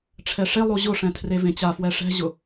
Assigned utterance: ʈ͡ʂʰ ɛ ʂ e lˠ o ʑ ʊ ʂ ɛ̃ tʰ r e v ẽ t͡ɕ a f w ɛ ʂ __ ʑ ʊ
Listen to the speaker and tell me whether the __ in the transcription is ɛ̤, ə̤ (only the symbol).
ɛ̤